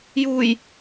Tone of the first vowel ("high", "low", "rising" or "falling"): low